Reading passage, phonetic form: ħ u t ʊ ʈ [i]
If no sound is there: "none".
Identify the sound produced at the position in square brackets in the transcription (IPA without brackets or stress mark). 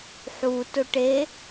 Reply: e